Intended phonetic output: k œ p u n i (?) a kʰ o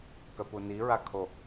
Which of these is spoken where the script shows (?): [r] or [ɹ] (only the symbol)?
ɹ